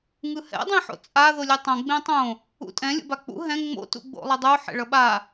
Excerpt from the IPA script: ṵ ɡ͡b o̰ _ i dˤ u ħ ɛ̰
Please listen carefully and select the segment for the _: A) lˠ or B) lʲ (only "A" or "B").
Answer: A